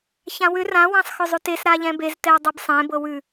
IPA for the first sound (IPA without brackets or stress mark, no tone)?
ç